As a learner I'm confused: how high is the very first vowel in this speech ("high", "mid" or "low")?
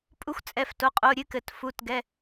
high